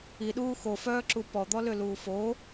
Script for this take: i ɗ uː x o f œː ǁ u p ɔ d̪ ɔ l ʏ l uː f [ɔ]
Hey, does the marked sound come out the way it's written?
no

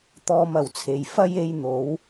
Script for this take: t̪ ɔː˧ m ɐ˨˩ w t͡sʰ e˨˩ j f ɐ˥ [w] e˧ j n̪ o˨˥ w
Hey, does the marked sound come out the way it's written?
no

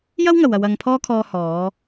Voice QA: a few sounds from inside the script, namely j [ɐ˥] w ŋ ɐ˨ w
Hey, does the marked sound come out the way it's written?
yes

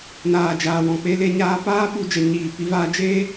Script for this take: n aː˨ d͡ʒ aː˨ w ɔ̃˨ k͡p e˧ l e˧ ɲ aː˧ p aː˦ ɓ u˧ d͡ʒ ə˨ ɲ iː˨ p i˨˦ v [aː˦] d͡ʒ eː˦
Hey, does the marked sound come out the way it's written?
yes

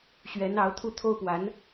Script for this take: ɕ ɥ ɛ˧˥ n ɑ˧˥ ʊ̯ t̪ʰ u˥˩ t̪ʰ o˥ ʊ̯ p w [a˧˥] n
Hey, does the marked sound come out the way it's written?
yes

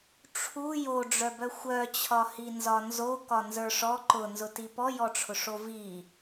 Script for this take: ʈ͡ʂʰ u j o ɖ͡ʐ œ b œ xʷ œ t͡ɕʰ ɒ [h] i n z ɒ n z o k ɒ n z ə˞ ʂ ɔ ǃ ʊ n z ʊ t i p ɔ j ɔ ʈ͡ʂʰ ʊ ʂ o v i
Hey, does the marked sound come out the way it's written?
yes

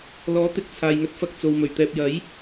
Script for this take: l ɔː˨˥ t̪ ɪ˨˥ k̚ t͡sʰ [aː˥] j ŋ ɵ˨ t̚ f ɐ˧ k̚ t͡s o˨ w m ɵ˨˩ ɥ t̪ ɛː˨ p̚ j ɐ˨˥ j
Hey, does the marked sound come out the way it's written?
no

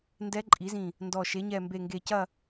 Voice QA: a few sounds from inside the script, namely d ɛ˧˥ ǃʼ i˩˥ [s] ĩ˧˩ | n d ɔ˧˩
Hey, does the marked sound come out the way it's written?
no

